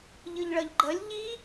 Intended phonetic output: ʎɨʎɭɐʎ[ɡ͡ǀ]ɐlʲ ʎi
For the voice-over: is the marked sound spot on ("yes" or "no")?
no